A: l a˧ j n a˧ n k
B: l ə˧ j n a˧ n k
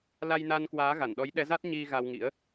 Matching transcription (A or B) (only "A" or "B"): A